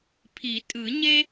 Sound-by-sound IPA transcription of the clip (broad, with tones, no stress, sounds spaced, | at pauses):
pʰ i˨˩˦ tʼ ɯ˨˩˦ ɲ e˥